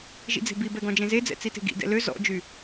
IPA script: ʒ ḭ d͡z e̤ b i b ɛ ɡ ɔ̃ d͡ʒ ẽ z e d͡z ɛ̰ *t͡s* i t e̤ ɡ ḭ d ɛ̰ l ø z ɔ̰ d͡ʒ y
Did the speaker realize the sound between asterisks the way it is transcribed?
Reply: yes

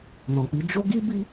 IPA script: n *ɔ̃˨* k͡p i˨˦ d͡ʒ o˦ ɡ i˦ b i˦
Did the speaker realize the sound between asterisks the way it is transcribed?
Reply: yes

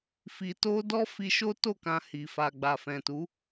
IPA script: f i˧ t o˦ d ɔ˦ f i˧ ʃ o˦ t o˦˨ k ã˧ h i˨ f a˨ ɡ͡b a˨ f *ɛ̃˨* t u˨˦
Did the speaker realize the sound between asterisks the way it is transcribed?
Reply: yes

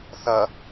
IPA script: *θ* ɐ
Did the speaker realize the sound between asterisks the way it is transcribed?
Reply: yes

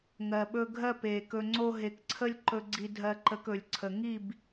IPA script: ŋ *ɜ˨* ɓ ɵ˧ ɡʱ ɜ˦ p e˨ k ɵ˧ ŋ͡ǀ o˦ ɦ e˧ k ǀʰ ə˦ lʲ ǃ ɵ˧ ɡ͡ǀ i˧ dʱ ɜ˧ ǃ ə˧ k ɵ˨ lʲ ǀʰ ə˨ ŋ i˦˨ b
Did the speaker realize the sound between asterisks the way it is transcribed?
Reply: yes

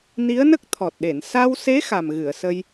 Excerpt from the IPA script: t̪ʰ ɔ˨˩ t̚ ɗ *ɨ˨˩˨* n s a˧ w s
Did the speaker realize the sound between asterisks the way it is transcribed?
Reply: no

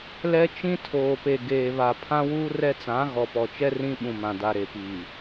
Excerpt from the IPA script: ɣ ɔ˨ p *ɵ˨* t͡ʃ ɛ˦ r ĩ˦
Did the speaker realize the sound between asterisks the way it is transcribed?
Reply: no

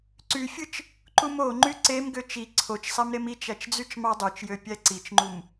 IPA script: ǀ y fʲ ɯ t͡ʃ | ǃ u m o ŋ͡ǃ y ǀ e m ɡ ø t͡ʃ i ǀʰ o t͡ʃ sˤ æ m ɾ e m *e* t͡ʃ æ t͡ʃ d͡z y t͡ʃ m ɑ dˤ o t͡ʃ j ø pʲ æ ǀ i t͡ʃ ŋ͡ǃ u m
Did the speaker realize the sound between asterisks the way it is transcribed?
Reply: no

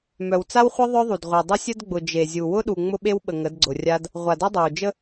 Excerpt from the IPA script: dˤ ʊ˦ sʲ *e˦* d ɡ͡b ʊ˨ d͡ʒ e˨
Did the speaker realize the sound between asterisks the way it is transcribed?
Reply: no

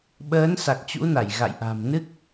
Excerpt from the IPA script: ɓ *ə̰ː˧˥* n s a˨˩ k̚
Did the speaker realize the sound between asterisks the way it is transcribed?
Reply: no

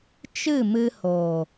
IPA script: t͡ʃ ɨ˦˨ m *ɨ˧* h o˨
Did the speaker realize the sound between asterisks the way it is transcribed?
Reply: yes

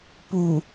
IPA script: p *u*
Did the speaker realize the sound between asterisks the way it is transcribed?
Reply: yes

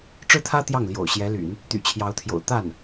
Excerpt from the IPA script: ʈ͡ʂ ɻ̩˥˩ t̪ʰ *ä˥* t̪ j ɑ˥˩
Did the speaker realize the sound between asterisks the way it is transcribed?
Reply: yes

